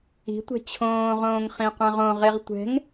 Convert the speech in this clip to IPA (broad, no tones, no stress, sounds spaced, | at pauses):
i̤ tʷ ɛ̤ t͡ɕʰ õː ʁ õː ŋ χ ĩ qʷ ã ʁ õ ʁ e ʁ tʷ ɛ̤ ŋ